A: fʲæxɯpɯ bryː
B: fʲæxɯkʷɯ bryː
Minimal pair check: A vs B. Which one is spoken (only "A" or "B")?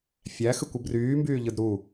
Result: B